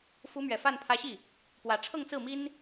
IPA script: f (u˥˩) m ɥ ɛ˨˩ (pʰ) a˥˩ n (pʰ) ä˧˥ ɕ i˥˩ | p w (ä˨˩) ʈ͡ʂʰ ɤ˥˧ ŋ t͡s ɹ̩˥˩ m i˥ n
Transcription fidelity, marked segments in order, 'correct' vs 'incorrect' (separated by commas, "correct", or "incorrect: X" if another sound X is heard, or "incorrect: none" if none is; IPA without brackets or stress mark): incorrect: u˧˥, incorrect: f, correct, correct